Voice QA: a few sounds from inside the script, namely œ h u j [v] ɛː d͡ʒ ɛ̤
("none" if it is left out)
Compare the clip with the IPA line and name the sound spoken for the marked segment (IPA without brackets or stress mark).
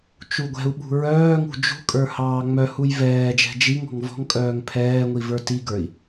v